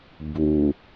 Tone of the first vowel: low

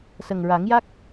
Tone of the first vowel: low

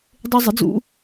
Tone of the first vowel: high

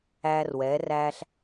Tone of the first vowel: high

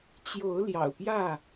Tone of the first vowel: rising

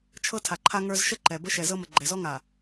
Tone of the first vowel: high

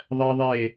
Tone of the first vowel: high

